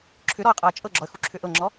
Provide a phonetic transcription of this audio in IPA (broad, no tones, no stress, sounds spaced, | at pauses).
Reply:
ǁʰ ʏ ɾ ɔ ə̯ qʼ ɤ ə̯ t͡ʃʼ ɤ ɡ͡ǁ ɔ ə̯ x u ǁʰ ʏ ʔ ɤ ŋ͡ǁ ɔ